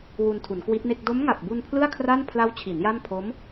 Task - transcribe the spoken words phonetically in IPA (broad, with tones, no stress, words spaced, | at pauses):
wu˧ntʰu˩˦nkwi˦˥t̚ne˥˩k̚ do˦˥mŋa˨˩p̚bu˧n pʰlɯ˥˩a̯kʰra˥˩n pʰla˦˥wt͡ɕʰi˩˦n ja˥˩m pʰo˦˥m